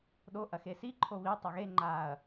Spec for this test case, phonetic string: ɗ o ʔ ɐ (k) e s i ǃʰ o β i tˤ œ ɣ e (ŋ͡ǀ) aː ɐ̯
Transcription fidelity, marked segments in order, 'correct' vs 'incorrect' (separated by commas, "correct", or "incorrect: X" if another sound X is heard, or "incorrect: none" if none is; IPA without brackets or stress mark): incorrect: x, incorrect: ŋ͡ǃ